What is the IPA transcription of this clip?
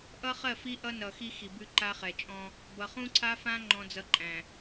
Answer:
ʔ ʌ˦ χ ɜ˦˨ f i˦ ʔ ʌ˦ n ʌ˨ x i˦ x i˨ b ʉ˦ ǃ a˦ χ ɛ˨ t͡ʃʼ ɔ̃˦ | b ʌ˨ χ ũ˦ ǀʰ a˦ f ã˦ ŋ͡ǃ ɔ̃˦ d͡z ʌ˦ ǃʼ æ̃˨

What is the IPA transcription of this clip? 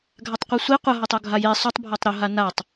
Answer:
ɡʱ a tˤ qʷ e sʷ i qʷ ɐ ɦ o tˤ o ɡʱ a j e sˤ o tˤ bʱ a tˤ ɾ o ɦ a n a tˤ

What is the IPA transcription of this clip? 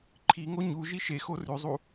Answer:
ǃʰ i ŋ o ɲ u ʒ i ʃ e x o r ʉ zˤ u

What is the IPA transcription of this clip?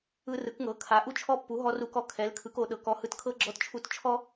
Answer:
ɯ˦ r ɯ˩˥ k ŋ ɤ˩˥ kʰ a˩˥ ʔ u˦ t͡ʃʰ ɔ˦ pː u˩˥ ɦ ɔ˦ r u˦ k ɔ˦ kʰ ɛ˩˥ l kʰ ɯ˩˥ k o˩˥ ɗ ɤ˩˥ k ɔ˩˥ h ɯ˩˥ t kʰ ɤ˦ ɡ͡ǁ ɔ˦ t t͡ʃʰ u˦ t t͡ʃʰ ɔ˦

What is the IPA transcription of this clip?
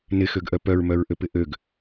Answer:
n ɪ x ø ɡ ʔ œ p œ ɹ m œ ɹ ʔ ø p ɪ ʔ ø ɡ

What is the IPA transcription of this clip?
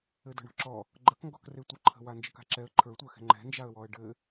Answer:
ɘ d ɔ̤ ɳ ɔ̤ ǁ ɔ | ɡ͡ǃ ə k ŋ ɡ ɔ k r e tʷ ɨ ǃʰ ə̤ w a n d͡ʒ ɘ k a̤ ǁ ɛ ə̯ ǃʰ ə˞ tʷ ə˞ x ɛ̤ ŋ͡ǃ ɛ̤ n d͡ʒ a ə̯ w ɔ ə̯ ɖ ɘ

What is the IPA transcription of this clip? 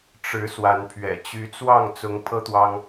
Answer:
ʈ͡ʂ ɻ̩˨˦ s w a˨˦ n pʰ ɥ ɛ̰˨˩ t͡ɕ y˨˦ t͡s w ɑ˥˨ ŋ t͡s ʊ˨˦ ŋ pʰ ɤ˦ t̪ w ɑ˦ ŋ

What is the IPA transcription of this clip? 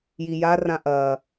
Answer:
j i j a r ã ʔ ɐ

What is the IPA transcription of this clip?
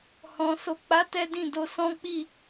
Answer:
h ɔ̃˨ s o˨ k͡p a˨˦ t ɛ˦ d ĩ˦˨ d o˧ s ɔ̃˦ k͡p i˦˨

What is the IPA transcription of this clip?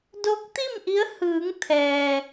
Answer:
d o˧˥ k̚ t̪ i˥˨ m ʔ i˧˥ ə̯ h ɯː˩˧ ŋ t̪ʰ ɛː˩

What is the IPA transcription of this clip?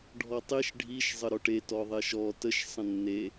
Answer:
ɖʱ ɔ tˤ i ʃ ɖʱ i ʃ zˤ ə ɾ ɔ ʈ e t ɔ ðˤ e ʃ ɔ t ə ʃ sˤ ə̃ nː e

